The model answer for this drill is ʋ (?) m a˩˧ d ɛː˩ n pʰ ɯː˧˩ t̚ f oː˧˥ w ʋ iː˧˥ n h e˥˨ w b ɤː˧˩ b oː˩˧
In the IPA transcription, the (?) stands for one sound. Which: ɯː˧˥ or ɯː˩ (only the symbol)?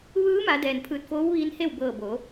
ɯː˧˥